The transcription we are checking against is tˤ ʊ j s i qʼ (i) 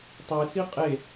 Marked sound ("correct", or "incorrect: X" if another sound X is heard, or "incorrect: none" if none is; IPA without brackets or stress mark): incorrect: e